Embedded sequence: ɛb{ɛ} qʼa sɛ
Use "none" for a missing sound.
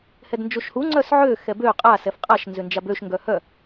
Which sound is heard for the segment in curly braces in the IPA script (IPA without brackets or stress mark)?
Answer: ø